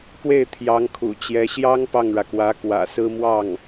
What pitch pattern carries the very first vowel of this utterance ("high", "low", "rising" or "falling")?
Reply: falling